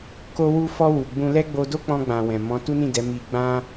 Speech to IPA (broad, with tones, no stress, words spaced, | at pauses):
ko˧wu˧fɔ˧ wu˨ɡ͡bũ˧lɛ˦ ɡ͡bo˧do˦k͡pɔ̃˧ɡ͡bã˨ wɛ̃˨ mɔ̃˨˦tu˦ nĩ˦˨dɛ˨˦mi˧ɡ͡bã˦